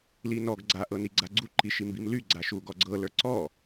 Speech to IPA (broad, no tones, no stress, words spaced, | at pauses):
linɔɡ ɡ͡ǀa ʔɤniɡ͡ǀaɡ͡ǀu ǃiʃimbimly ɡ͡ǀaʃuɡɔɡ͡ǀɤ lə˞ǀɔ